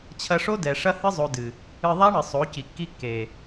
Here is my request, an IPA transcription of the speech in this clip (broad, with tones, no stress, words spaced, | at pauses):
t͡ɕʰɐ˧ʂo˦dɛ˨ ʂɐ˦hɨ˦zˤo˧dɨ˨ | ɨ˧ðˤa˦ɳɨ˨ sˤo˨˦ ci˨kːi˦kːe˨